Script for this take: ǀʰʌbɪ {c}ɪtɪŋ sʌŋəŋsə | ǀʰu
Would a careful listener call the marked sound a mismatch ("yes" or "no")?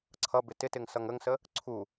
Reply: yes